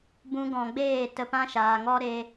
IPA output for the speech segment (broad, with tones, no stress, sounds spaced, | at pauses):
b ũ˦ ɡ ɔ̃˧ ɡ͡b eː˦˨ t ə˧ p ã˦ ʃ aː˨ ŋ ɔ˦ ɾ e˧